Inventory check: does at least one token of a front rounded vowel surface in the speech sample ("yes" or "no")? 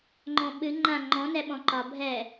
no